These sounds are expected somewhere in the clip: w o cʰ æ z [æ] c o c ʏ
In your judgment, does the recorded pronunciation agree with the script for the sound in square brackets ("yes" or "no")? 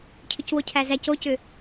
yes